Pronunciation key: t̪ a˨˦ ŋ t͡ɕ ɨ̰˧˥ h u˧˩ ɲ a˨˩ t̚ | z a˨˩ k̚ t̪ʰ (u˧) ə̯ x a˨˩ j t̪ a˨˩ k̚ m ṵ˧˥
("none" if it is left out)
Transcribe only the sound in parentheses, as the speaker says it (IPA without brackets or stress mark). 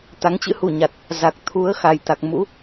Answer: u˨˦